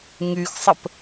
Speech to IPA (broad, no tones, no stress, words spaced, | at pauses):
ŋyxsˤəp